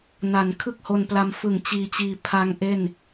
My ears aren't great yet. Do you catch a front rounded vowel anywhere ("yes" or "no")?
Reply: no